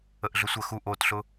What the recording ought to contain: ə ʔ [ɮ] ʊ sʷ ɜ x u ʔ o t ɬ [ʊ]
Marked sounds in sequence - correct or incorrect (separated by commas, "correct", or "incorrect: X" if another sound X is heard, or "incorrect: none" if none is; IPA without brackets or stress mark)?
correct, correct